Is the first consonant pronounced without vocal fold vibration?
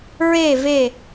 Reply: no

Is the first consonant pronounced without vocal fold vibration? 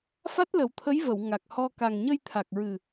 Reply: yes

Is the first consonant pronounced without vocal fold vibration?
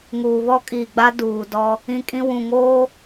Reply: no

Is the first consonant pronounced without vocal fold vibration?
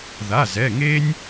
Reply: no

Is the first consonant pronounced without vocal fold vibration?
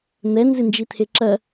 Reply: no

